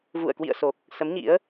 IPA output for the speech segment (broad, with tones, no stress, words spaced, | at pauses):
vṵ˧˨ə̯ kwḭ˧˨ə̯so˨˩k̚ | sə˨˦mɲḭ˧˥ə̯